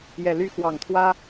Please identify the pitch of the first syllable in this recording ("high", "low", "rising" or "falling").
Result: low